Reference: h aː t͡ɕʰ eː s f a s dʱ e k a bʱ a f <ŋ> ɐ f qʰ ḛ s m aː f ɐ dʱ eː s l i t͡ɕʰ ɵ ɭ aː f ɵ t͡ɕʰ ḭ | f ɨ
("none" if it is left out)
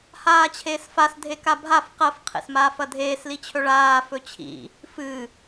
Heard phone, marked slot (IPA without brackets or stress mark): q